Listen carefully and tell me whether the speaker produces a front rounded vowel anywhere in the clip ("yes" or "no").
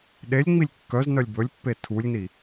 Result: yes